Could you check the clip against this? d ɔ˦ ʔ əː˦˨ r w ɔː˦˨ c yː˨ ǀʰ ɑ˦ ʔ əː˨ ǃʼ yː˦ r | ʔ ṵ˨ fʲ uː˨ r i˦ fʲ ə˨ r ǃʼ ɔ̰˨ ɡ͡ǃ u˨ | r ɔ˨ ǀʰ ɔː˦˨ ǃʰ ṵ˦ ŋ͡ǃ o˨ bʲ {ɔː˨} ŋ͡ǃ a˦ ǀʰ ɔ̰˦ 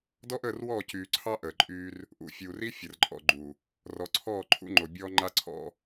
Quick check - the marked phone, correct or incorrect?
incorrect